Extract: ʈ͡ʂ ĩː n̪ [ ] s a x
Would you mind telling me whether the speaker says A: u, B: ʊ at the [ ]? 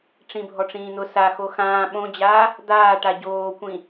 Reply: B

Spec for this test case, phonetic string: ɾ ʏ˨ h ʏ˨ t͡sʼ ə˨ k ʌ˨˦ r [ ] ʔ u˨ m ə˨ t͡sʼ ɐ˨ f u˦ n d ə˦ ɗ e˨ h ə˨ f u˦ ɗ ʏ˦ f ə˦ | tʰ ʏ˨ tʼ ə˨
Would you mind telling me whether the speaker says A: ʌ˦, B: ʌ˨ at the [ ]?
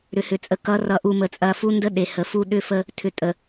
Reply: B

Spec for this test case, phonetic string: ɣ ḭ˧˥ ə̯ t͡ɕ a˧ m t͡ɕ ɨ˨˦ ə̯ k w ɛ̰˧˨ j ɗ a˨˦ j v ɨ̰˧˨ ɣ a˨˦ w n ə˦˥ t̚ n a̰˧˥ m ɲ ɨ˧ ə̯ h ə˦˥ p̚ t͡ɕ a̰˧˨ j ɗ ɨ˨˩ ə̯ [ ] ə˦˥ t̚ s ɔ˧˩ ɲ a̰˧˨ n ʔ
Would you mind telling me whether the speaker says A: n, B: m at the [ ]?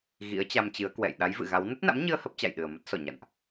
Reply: B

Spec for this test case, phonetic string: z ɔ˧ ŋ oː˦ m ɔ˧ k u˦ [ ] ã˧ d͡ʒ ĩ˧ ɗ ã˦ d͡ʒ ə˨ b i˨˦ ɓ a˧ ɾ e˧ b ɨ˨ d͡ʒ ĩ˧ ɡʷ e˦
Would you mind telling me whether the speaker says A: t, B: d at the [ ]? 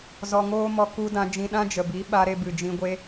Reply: B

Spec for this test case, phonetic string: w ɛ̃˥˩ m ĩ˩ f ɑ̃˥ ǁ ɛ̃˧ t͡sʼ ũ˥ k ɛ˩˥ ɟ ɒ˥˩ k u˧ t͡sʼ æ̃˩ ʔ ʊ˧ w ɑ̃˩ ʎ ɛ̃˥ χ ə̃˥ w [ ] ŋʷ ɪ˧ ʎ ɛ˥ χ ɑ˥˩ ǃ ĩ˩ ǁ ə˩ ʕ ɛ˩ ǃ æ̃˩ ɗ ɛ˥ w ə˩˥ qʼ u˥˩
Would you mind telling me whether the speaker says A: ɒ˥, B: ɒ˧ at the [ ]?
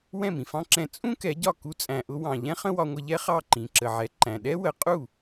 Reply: B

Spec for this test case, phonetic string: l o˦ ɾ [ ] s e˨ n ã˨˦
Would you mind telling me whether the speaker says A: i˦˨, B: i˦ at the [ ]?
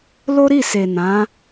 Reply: A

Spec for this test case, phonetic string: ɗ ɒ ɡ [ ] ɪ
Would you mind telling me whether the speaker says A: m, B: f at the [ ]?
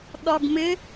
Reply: A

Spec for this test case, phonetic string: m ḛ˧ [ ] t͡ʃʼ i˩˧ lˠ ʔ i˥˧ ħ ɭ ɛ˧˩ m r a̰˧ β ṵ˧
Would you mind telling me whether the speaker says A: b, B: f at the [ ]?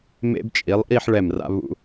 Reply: A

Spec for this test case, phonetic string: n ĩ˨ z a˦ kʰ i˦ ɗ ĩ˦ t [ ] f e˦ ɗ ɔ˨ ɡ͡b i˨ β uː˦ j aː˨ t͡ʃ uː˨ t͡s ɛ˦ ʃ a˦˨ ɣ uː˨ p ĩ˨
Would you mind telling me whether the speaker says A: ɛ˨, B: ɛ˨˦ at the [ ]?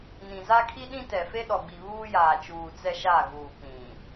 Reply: A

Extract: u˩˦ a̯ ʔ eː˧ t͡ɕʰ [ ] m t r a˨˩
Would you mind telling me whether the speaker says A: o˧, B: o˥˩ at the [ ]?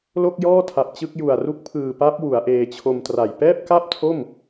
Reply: A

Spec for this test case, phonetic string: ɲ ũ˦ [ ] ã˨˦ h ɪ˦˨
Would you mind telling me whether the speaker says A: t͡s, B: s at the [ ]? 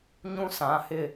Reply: B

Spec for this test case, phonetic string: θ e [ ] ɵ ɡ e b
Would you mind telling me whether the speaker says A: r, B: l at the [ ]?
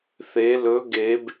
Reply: B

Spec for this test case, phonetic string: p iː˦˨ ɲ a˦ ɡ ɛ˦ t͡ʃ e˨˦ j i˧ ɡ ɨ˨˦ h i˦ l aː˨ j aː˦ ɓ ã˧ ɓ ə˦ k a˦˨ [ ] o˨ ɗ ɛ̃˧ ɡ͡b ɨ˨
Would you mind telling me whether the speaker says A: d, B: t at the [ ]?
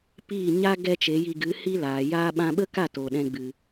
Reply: B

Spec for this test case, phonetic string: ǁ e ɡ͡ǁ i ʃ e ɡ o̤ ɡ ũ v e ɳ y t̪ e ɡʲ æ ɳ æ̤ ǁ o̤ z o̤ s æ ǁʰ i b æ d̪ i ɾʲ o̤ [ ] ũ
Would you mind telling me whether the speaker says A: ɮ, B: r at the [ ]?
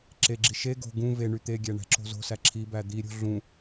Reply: A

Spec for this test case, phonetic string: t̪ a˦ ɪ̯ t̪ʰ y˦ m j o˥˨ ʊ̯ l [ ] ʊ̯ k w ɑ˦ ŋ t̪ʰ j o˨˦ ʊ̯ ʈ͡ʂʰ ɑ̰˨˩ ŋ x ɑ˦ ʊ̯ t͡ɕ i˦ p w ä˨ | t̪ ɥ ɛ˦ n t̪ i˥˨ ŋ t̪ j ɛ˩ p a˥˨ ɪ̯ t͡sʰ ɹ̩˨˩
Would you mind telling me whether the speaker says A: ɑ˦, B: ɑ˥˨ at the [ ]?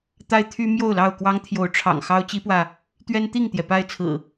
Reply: B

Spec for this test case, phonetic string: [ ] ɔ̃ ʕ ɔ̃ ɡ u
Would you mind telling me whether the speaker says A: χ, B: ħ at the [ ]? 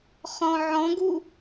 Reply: A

